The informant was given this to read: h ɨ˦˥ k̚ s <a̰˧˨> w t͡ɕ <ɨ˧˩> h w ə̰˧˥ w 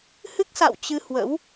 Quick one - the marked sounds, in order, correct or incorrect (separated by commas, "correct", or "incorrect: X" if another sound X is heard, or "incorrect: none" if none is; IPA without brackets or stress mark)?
correct, incorrect: ɨ˧